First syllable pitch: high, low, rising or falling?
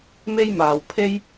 high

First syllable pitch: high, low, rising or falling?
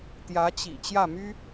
rising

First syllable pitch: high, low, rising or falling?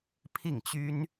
falling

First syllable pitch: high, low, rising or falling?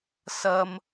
high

